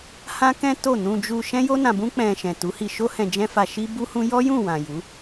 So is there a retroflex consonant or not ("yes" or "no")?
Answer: no